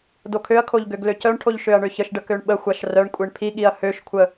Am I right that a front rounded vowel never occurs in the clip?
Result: no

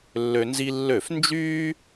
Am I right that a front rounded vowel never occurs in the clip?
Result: no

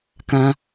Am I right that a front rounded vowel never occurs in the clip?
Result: yes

